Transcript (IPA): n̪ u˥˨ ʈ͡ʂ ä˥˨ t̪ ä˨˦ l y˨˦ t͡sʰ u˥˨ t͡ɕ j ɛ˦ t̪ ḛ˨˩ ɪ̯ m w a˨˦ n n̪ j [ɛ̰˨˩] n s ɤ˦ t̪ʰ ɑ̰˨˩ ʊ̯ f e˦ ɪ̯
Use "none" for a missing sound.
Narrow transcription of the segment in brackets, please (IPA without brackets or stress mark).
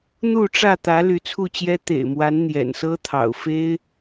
ɛ̰˨˩